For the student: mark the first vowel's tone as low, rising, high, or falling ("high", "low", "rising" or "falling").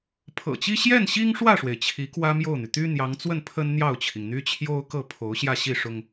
low